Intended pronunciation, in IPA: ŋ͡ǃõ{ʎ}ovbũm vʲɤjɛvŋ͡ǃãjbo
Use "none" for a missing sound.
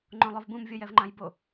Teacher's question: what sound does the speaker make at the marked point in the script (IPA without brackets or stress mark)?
lˠ